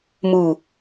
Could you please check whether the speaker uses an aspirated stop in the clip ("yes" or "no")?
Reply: no